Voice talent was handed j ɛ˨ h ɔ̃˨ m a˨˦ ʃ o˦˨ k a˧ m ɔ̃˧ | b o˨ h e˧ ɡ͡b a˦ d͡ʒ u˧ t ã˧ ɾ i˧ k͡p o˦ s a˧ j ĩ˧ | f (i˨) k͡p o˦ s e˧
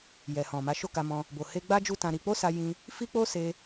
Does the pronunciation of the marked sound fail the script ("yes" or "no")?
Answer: yes